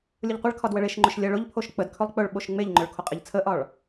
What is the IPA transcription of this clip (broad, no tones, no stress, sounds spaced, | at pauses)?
lʲ ʊ ʎ qʷ ə ɭ kʰ ɒ d w ə ɭ e ʃ ŋ͡ǃ ʊ ʃ lʲ ə ɭ ʊ ʎ pʰ o ʃ k͡p ə d kʰ ɵ lˠ k͡p ɵ ɭ ɓ o ʃ ŋ͡m e ʎ ŋ͡ǃ ʊ ɭ kʰ o qʼ e ʎ t͡sʰ ə ʔ ɒ ɭ